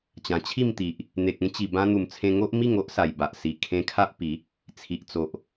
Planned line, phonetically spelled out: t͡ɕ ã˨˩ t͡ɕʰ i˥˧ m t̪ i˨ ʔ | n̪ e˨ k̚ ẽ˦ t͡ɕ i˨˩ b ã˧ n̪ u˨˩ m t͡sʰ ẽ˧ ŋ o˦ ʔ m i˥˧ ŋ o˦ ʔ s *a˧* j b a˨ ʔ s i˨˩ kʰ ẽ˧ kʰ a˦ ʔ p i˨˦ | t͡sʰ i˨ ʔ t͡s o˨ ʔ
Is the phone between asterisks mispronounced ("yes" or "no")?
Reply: yes